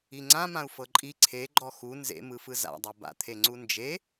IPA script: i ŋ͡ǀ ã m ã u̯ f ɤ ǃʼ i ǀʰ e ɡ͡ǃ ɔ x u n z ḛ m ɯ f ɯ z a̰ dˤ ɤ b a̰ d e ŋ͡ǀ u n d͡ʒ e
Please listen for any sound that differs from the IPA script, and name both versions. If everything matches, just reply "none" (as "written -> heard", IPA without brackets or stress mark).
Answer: d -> t̪ʰ